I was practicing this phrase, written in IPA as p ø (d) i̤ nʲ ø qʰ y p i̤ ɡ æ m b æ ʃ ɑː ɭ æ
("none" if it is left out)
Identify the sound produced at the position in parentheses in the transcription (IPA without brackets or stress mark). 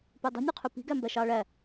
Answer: dˤ